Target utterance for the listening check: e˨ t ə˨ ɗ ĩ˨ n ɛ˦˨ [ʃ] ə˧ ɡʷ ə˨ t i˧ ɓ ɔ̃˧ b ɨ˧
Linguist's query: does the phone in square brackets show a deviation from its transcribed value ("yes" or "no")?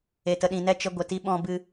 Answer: yes